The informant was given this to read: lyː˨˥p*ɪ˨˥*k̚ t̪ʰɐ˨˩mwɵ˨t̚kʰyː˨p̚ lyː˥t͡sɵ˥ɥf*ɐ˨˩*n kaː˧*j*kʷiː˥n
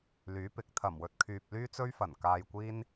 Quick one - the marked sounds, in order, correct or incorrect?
correct, correct, correct

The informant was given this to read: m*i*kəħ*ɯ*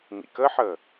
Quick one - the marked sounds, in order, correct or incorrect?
incorrect, incorrect

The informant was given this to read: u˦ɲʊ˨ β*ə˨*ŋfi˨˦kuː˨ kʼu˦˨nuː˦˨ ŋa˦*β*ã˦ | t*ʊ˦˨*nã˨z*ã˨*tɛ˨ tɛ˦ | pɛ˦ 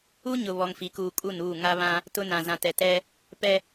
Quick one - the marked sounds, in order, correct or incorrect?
incorrect, correct, incorrect, correct

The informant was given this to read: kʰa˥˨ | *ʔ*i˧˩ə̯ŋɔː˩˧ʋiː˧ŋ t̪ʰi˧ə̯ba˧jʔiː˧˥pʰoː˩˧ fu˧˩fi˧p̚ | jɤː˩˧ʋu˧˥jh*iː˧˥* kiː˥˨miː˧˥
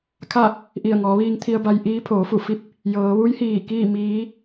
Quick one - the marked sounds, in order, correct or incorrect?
correct, incorrect

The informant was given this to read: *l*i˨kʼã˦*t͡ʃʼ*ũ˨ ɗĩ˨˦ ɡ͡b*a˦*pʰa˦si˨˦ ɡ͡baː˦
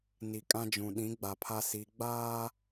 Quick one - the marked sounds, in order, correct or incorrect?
incorrect, incorrect, incorrect

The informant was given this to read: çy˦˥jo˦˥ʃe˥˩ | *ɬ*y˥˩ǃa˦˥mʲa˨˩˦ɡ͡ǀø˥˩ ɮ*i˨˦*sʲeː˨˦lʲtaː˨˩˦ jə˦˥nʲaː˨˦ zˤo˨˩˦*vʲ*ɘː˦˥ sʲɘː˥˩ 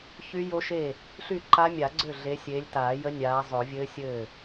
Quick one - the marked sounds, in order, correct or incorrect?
correct, incorrect, correct

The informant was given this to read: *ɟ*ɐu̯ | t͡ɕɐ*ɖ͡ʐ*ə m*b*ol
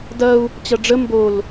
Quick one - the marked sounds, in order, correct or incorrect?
incorrect, correct, correct

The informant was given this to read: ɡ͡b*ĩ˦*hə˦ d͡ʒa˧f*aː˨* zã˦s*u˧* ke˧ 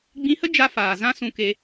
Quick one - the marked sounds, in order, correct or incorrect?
incorrect, correct, incorrect

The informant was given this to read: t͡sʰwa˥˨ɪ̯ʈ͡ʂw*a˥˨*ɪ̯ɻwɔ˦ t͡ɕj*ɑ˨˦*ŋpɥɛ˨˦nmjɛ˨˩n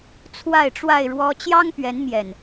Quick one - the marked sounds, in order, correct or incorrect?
correct, incorrect

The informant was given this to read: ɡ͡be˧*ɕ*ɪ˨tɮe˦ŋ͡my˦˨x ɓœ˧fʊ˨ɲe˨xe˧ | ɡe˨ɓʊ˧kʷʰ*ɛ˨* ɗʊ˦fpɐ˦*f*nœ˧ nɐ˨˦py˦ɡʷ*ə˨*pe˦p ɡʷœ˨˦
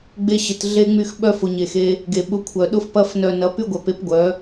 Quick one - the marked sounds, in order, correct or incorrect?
correct, incorrect, correct, incorrect

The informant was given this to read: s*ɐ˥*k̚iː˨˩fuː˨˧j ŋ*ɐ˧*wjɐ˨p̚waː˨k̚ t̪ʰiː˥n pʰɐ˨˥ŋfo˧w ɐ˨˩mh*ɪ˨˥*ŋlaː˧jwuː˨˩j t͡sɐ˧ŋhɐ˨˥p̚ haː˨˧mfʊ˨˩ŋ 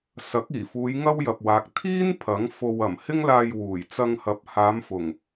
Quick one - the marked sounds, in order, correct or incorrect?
incorrect, incorrect, incorrect

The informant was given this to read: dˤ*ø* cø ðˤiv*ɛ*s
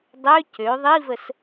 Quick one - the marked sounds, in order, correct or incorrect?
correct, incorrect

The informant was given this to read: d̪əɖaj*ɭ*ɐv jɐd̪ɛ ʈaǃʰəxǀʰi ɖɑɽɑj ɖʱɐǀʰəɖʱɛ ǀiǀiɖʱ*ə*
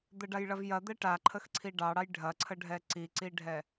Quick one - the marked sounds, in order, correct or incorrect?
correct, incorrect

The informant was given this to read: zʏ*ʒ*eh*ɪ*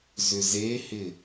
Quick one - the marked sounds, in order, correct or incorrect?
incorrect, correct

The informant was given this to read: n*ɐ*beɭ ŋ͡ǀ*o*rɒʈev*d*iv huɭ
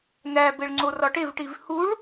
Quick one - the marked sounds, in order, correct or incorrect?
incorrect, correct, incorrect

